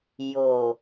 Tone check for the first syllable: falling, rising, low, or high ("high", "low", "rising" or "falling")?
low